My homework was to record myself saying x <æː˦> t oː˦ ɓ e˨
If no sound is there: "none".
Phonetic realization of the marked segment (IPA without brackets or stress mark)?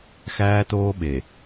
æː˦